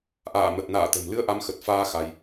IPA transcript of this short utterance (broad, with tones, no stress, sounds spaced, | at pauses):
ʔ a̰ː˧˨ m ə˨˩ t̚ n a̰ː˧˨ t̪ ə̤˨˩ m l ɨ˧ ə̯ ʔ a˨˦ m x ə˨˩ t̚ f aː˧ x a˧ j